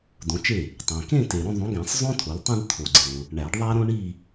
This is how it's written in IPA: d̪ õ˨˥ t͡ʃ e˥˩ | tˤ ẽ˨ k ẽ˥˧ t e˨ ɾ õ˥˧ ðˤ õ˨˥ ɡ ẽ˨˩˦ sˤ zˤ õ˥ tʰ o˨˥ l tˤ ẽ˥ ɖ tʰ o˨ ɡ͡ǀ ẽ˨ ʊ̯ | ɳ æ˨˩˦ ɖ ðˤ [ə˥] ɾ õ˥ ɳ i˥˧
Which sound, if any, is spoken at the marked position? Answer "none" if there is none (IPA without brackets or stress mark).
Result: æ˥